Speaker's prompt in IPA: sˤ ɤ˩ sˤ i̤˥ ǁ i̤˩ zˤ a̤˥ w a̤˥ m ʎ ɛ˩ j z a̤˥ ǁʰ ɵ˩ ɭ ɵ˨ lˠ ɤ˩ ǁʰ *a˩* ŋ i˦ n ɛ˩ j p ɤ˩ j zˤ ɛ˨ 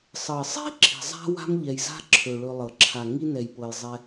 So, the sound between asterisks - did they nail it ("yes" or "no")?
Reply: yes